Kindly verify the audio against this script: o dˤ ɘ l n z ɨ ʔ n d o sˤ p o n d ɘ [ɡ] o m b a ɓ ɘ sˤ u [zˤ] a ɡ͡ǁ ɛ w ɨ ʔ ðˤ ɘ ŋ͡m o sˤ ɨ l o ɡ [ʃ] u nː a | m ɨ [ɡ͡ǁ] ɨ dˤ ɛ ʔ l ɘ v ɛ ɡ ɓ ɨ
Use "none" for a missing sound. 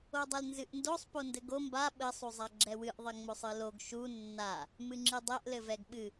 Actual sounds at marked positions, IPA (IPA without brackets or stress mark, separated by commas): ɡ, zˤ, ʃ, ŋ͡ǁ